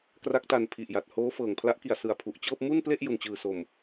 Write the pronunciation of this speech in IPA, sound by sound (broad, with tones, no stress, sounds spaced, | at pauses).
k r a˦˥ k̚ t a˧ n pʰ i˨˩ ʔ j a˨˩ t̚ h oː˦˥ f ɤː˨˩ ŋ pʰ l a˦˥ ʔ k i˨˩ a̯ s ɯ˨˩ a̯ pʰ u˨˩ ʔ t͡ɕ ɤː˥˩ p̚ m u˥˩ n p l e˥˩ ʔ j u˨˩ n t͡ɕ ɯː˨˩ s o˨˩ m